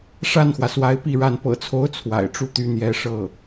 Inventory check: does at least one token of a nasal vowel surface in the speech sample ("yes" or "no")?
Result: no